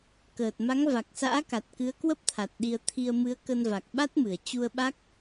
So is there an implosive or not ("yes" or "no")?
yes